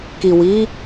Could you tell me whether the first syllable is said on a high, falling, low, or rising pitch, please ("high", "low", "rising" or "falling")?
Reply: low